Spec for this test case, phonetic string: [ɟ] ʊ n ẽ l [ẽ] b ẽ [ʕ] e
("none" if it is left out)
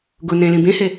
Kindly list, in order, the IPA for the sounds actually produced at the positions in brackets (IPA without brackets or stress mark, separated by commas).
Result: ɡ, ĩ, h